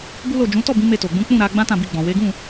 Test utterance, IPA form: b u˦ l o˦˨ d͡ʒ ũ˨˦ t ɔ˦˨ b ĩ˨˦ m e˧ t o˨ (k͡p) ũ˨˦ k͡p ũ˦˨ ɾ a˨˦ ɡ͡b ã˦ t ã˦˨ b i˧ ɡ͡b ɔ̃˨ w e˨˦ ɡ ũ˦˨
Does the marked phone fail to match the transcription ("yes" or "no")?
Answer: yes